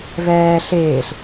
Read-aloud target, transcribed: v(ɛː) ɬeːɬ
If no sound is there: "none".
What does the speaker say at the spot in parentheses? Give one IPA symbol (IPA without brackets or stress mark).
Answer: ɛː